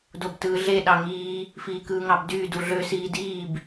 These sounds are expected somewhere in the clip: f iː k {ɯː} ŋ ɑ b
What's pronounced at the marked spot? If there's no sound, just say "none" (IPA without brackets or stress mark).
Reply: ɯː